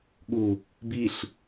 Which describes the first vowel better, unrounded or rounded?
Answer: rounded